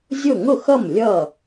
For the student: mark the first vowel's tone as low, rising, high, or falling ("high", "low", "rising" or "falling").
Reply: falling